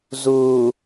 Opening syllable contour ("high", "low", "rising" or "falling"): low